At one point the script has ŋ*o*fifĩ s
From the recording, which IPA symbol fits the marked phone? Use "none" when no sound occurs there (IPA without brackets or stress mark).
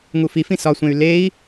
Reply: u